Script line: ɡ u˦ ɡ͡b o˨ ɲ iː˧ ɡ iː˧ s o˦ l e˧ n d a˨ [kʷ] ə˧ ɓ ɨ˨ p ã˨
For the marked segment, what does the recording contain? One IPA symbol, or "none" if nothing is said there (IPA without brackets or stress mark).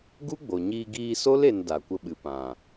kʷ